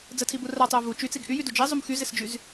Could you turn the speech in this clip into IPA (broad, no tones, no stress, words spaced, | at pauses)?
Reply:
d͡zətʰibu ratˤɪɐ̯ vu t͡ʃyt͡siɡ ʔyjydu d͡ʒizˤum xyzɪsd͡ʒyz